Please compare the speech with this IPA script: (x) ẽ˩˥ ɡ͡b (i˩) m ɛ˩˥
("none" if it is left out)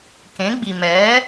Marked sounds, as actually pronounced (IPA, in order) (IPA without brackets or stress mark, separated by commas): k, i˩